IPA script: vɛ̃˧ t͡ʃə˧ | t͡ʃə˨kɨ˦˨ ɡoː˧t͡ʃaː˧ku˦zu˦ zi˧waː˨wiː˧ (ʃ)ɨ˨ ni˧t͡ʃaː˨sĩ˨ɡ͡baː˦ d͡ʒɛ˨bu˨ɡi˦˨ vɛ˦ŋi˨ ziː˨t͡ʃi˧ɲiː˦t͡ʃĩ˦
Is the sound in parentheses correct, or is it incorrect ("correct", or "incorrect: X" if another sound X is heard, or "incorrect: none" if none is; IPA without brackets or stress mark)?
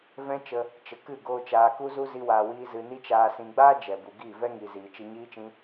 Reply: incorrect: z